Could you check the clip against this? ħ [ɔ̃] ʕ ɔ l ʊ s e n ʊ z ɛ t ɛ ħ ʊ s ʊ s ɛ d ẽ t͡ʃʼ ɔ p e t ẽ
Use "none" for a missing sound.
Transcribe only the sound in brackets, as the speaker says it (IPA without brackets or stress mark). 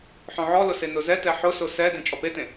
ɔ̃